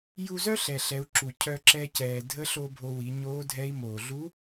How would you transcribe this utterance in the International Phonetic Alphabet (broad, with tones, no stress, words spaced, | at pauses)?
ju˧zœ˥ ɬɛ˩ɬɛ˩˧u̯ ǁu˩ cʰœ˧ǁɛ˧cɛː˩ dʱə˧˥ɬo˧ bʱo˧wi˩˧ ɲoː˧˥dʱɛː˧˥i̯ moː˩ɮu˧˥